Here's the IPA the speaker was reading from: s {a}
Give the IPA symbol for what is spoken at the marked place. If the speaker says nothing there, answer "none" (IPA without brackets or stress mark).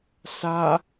a